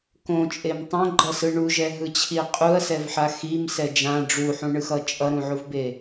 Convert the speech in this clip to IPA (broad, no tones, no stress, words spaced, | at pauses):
kõt͡ʃʼem tˤõɡ͡ǃʌsɯ ɳuʒɛɦɯt͡ɕʰi qʼuɐ̯sɛvħa ximsɛ d͡ʒã ɖ͡ʐuħũɳɯxʌ t͡ʃʼʌɾũʕuvbe